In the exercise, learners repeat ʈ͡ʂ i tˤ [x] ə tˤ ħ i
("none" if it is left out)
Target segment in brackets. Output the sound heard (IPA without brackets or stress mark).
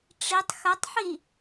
x